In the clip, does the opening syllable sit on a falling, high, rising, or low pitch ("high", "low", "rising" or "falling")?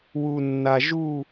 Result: low